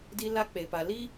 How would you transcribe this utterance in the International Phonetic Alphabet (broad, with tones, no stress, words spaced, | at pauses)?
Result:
di˦la˦k͡pe˨pa˨ li˦